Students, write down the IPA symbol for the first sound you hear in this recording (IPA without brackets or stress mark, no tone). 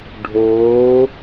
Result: ɖʱ